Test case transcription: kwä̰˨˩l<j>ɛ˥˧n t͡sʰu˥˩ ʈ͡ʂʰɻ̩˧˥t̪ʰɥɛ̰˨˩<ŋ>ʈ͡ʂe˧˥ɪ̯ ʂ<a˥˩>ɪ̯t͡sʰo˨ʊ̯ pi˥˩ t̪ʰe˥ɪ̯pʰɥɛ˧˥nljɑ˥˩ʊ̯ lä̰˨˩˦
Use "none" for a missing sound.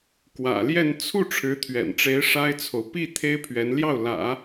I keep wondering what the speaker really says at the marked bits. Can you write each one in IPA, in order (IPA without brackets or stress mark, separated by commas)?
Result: j, n, a˥